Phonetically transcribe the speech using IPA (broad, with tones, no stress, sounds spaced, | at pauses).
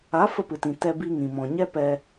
a˨˦ f ə˧ p ɨ˨ t ĩ˨ t ɛ˧ b i˧ ŋ ĩ˨ m ɔ̃˨ ɲ ɛ˦ p ɛ˧